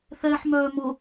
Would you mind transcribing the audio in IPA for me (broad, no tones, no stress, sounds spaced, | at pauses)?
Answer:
θ ɛː ħ m œː m ʊ